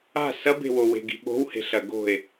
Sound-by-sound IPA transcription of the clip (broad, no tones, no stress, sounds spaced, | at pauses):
a̤ s ɐ b e̤ w o w e̤ ɡ i̤ ɓ o̤ w h e̤ ɬ ɐ ɡ o̤ e̯